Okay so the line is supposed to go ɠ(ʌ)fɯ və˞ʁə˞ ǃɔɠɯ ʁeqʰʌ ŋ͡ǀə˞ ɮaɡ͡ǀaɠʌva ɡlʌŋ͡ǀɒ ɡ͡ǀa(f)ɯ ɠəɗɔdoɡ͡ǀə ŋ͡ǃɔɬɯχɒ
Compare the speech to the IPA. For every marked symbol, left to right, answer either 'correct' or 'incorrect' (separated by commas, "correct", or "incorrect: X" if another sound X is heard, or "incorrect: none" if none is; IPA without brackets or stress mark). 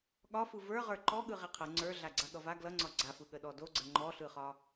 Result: incorrect: ɒ, correct